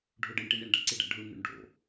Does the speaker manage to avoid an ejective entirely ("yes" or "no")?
yes